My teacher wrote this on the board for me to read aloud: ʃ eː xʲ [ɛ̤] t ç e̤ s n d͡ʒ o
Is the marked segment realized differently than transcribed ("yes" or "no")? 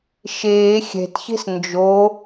no